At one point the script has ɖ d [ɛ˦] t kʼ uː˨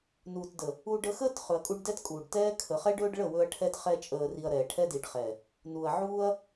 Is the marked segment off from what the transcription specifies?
no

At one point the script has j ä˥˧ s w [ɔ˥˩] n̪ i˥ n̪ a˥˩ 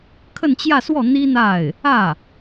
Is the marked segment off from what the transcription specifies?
no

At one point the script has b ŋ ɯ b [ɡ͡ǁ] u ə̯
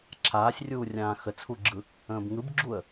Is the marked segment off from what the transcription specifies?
no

